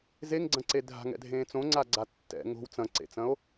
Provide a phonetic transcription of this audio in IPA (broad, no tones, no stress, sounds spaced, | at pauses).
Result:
z e ŋ ɡ͡ǀ ɐ̃ ǀ e dʱ a̤ ŋ ɛ̰ dʱ ẽː t͡s õ ŋ͡ǀ a ɡ͡ǀ a tː ɛ̰ ŋ o̤ w t͡s ɐ̃ ǀ ḛ t͡s ɐ̃ o̯